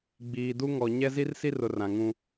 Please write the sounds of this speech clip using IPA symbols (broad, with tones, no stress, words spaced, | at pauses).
ɡ͡biː˨du˦ ŋɔ˨ ɲɛ˦zi˦rsi˦rʊ˨ rã˨ŋũ˦